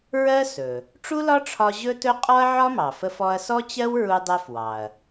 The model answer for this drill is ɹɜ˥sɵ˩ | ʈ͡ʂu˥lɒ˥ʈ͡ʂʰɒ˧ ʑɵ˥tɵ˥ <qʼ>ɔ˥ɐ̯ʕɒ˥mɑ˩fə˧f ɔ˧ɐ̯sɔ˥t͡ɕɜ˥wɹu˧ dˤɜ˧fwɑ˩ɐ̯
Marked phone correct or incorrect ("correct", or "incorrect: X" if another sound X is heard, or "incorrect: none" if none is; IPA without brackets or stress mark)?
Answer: correct